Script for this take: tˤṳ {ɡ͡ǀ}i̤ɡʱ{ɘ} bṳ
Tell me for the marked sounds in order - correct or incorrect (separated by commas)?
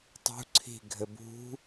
incorrect, correct